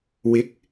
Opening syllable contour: rising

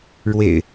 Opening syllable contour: low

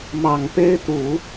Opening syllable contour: low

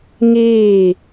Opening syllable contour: falling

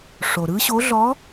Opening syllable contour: low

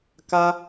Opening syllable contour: high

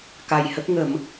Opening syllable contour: low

